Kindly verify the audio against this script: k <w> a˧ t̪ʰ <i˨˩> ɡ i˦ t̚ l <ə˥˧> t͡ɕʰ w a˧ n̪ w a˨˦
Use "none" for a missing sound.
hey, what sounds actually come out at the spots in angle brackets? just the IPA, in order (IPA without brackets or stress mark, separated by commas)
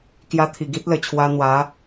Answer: j, i˨˩, ə˨˩